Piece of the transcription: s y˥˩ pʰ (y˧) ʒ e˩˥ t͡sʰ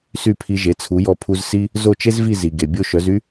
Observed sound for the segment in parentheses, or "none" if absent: i˧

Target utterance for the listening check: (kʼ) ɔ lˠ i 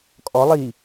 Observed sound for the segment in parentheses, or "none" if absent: kʼ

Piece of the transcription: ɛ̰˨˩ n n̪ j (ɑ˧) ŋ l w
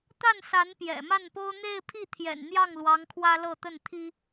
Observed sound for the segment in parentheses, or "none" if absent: ɑ˥˩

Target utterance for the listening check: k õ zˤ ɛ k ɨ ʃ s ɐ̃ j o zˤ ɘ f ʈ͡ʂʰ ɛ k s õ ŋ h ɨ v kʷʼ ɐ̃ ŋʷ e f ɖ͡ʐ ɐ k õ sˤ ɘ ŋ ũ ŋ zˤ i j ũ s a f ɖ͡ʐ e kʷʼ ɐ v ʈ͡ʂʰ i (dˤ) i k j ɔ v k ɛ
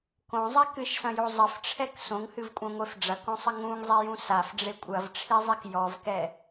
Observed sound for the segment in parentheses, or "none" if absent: zˤ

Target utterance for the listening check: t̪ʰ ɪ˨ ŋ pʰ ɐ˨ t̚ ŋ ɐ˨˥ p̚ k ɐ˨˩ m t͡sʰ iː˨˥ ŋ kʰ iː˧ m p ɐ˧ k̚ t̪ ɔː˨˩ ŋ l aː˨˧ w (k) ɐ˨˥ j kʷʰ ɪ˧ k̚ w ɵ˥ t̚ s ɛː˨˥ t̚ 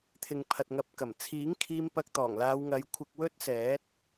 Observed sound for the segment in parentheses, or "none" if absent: ŋ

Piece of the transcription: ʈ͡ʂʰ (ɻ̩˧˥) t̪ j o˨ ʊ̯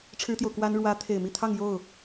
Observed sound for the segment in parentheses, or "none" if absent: ɻ̩˥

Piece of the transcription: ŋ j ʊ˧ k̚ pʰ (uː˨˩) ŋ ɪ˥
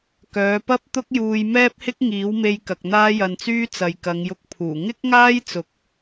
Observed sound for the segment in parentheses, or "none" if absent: uː˨˩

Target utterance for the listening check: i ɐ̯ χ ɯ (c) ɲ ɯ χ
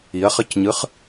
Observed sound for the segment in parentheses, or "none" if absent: c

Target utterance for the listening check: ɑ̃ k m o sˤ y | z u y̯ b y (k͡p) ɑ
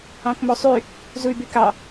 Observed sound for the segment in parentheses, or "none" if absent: k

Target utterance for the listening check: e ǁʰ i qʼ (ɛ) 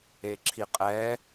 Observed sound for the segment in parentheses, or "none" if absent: ɛ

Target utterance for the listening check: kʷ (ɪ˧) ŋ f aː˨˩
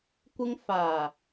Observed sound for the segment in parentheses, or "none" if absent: ɪ˧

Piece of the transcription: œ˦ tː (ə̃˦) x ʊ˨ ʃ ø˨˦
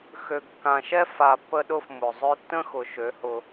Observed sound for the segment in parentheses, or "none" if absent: ə̃˦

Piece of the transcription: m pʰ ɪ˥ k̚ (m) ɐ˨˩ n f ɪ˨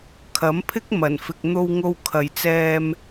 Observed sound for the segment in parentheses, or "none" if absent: m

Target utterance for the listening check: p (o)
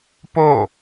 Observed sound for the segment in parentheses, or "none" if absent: o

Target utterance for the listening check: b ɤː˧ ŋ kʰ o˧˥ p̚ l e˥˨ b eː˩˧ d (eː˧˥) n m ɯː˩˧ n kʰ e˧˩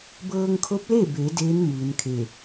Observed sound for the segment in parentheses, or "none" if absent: eː˧˥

